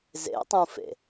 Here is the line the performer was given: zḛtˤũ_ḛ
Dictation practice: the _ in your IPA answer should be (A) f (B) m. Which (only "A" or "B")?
A